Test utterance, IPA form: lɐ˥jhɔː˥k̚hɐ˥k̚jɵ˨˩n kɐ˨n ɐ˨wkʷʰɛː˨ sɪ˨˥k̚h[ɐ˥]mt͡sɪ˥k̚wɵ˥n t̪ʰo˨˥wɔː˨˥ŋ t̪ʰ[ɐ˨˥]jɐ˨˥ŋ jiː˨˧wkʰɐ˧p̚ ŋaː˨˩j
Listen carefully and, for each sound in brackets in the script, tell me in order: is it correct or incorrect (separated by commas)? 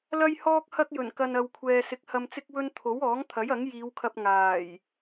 incorrect, correct